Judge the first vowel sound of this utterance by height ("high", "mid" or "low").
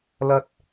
low